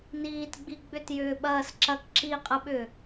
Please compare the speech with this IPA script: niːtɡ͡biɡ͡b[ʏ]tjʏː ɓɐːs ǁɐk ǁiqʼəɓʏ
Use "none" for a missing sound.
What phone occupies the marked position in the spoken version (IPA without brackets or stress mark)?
ʏ